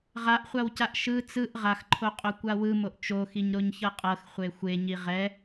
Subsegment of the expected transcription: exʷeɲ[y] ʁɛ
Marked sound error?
yes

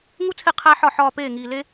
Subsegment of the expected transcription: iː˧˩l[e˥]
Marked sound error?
no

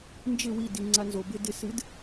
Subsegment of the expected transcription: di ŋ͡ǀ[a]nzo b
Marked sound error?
no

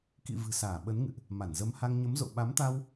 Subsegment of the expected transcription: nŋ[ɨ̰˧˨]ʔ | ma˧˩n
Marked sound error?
no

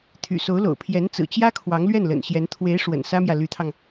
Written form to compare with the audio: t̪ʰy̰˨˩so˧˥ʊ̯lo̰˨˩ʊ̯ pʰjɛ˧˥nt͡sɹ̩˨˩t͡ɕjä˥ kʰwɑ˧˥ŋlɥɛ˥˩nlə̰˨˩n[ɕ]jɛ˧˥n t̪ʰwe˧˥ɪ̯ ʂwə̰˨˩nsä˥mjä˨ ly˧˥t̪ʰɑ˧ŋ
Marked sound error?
no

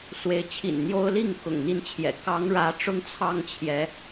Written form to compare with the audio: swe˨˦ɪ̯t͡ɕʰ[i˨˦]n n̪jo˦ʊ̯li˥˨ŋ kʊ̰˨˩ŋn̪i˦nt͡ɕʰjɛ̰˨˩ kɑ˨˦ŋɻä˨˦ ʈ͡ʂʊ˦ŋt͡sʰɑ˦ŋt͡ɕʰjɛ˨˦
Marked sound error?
yes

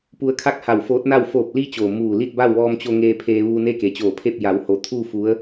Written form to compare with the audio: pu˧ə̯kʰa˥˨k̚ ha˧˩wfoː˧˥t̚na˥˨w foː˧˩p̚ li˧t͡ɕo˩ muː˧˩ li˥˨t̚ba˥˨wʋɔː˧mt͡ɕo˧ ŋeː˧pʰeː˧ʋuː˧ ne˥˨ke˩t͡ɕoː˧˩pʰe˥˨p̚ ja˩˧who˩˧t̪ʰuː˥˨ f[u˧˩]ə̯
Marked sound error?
yes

